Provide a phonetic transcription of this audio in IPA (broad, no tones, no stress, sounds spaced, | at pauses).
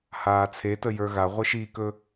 h aː t͡sʰ e t ə j ə˞ ɣ a ʁʷ e ʃ i k ɵ